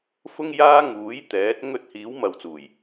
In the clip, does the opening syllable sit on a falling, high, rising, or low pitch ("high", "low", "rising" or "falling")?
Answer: high